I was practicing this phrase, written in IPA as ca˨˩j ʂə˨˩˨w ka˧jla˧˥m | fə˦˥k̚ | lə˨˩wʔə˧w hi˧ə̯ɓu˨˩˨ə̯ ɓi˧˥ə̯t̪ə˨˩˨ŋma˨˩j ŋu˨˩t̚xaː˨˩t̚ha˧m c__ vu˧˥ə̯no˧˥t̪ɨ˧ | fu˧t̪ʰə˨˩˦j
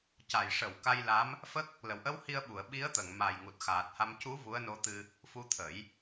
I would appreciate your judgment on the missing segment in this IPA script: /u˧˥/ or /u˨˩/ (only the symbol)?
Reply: u˧˥